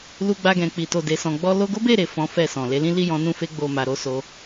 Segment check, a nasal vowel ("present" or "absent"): present